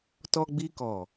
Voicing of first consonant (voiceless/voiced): voiceless